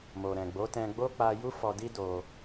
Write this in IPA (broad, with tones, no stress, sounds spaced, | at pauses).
m o˨ ɾ ɛ̃˨ ɡ͡b o˨˦ t ɛ̃˧ ɡ͡b o˦ k͡p a˧ j u˦ f ɔ˧ d i˦ d o˧